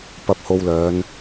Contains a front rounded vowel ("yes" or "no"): yes